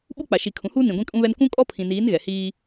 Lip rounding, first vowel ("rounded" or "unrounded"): rounded